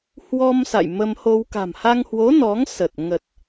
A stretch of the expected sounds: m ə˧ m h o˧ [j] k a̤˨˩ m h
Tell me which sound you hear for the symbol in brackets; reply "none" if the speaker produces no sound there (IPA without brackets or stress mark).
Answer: w